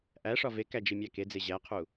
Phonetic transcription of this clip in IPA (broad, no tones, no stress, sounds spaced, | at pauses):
ʔ æ ʂ ɒ v e k æ d͡ʒ i mʲ æ k e d͡z e ʑ æ qʰ u